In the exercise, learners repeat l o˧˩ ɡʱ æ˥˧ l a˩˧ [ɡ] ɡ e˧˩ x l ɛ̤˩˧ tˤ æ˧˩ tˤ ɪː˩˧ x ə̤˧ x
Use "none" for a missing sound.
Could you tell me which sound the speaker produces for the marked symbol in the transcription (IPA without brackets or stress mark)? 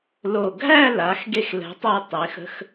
x